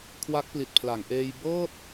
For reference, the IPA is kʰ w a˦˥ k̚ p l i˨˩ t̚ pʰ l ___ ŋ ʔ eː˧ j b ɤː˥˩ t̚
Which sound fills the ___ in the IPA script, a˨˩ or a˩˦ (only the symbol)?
a˩˦